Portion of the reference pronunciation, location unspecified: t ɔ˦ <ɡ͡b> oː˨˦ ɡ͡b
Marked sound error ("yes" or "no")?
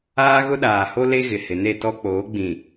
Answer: yes